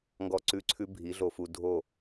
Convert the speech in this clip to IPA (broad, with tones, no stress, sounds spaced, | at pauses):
ŋ ɡ ɔ˦ ǀ ʉ˦ ǀʰ ʉ˦ bʱ i˨˦ ɮ o˧ f u˧ dʱ o˦˨